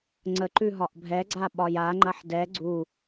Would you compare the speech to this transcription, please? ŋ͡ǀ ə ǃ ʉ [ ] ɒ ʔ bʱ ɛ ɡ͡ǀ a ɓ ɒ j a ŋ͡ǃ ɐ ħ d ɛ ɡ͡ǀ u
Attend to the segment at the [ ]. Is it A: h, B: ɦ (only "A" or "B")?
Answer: B